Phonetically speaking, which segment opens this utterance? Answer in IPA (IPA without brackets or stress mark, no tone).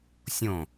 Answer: sʲ